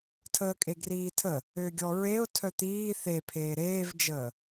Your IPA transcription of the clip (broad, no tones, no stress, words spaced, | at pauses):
tʰəːkʼeɡriːtʰə | øɡʲɔɹeʊ̯ tʰœt̪iː θepʰeː ɾeːvd͡ʒəː